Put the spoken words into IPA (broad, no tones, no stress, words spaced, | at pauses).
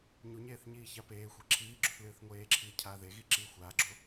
ɲuɲeːθ ɲiːçapeːxʷi ǁʰiːɡ͡ǁuθ lɨːθŋʷeːǁʰiː cʰaːðeɣi ǁiːxʷaːɡ͡ǁo